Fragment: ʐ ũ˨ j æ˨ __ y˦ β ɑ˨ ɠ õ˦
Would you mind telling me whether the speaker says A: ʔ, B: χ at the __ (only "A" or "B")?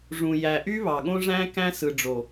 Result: A